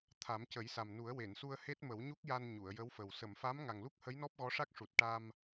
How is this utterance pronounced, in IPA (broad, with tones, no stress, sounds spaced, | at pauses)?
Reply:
t̪ʰ a˨˩˦ m c ə˨˩˦ j s a˨˩ m n u˨˩˦ ə̯ w e˨˩˨ n s u˧ ə̯ h e˦˥ t̚ m ə˨˩˦ w ɲ u˦˥ k̚ j a˧ n ɲ u˨˩˨ ə̯ j ə˧˥ w f ə˨˩ w s ə˨˩˨ m f a˧˥ m ŋ a˨˩ ŋ l u˦˥ k̚ h ə˧˥ j n ɔ˦˥ p̚ ɣ ɔ˧˥ ʂ a˦˥ k̚ ʂ u˨˩ t̚ ʈ a˧ m